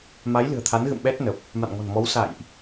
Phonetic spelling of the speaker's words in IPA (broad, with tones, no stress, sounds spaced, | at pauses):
m a˨˦ j l ɨ̤˨˩ ə̯ t̪ʰ a˨˦ n ɣ ɨ̰˧˨ m ɓ ɛ˦˥ t̚ n ə˨˩ p̚ | m a̰˧˨ n ŋ ɔ̤˨˩ n m ɔ˨˦ w s a̰˧˨ j ʔ